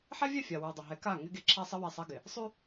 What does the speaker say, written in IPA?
ħɛ˦vʲɛ˦˨fʲa˨ wʉ˨dˤɪ˨ɦɛ˨˦ ka˦˨ ŋɪ˦ɡe˦ǁʰa˦sˤɪ˦ wɛ˦˨sˤɛ˦ɡɪ˨ | sˤʉ˦

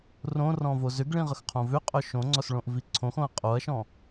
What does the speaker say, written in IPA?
rõrɔ̃vo zʏɡɭĩ ʁəxqʰõvʏqʼœ ʃõŋ͡ǀɔsɭõʔ viǀʰõxõɐ̯ qʼoɐ̯ʃɔ̃

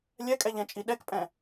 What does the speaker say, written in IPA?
lʲɛkʼɛʎɛ̃t͡ʃʼi ɗɛkpʼɛ̃

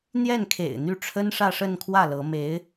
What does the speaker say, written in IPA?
n̪jɛ˥˩nkʰḛ˨˩ɪ̯ n̪y˥˩ ʈ͡ʂʰə˥nʂä˥˧ʂə˥˧nkʰwä˥˩ lɤ˧˥ me˧˥ɪ̯

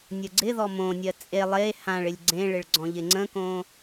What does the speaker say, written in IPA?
nʲəɡ͡ǀɪðɔ mõnʲɜ t͡sʼe lˠe hãɭɪlʲ ɡ͡ǀẽɭɪɭ ɡ͡ǀɔ̃ʎɪŋ͡ǀə̃kõ

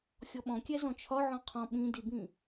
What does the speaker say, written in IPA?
xʲɔɓɔ̃kʲæ zɔ̃t͡ʃʰɒ ʕɔ̃qʰɔ̃ ɓĩdibĩ

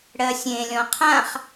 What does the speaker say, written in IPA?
ɽɜsʲẽlʲɔ̃ qʰãχ

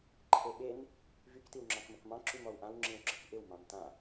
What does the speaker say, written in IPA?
ǃʰeɓen | vyk tiwŋ͡ǁɑ̃kməkmɑ̃ ǁymɔwʔãw ŋ͡ǁĩwɡ͡ǁɪkʔɪw mɑ̃mtã

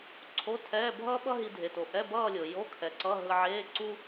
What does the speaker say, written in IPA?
ǀʰo˧˥˧tʰɛ˧˥˧ bʱʌː˥ ɓʌ˥ɦi˧ dʱe˩to˩ ʔɛ˧˥˧bʌː˥˧lʲo˩ jo˧˥˧kʰɛ˩ǀʌ˧˥˧ ɦɯ˧ ʕeː˧˥˧ǀu˥

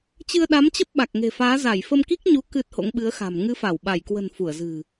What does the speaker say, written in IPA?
t͡ɕɨ˧ə̯ɗa˨˦mt͡ɕə˦˥p̚ ɓa˨˩k̚ŋe̤˨˩faː˨˦ za˧˩jfə˧mki˦˥k̚ɲu˨˦ kɨ˦˥t̚ho̰˧˥ŋɓɨ˨˦ə̯xa̤˨˩m ŋɨ˨˦fa˧˩w ɓa˧˩jkwə̤˨˩n fu˧˩ə̯zɨ̤˨˩

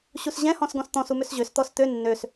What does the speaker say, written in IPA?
ɕusʑɛ̃hɔ̃s ɡɔ̃st̪ɔ̃s umøsʑøs t̪ɔst̪ø nːøs

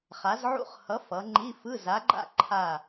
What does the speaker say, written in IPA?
χa˨˦zʕṵ˦˨χ hʌ˨˦ fʌ˨˦ŋ͡ǃi˧˥˧ fɯ˧˥˧ za˨˦ɡ͡ǃa̰˦˨ ǃʰa˦˨

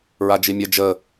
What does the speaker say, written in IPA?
ɹad͡ʒimʲə d͡ʒə

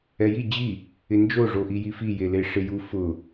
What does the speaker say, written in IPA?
ɛji d͡ʑi | ɪnd͡ʒo ʐoʔijifi jeleʂɪju fʊ

